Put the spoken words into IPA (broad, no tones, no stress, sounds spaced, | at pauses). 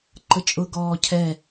ǃ ə t͡ʃʼ ʊ ɡ ɔː cʰ ɛ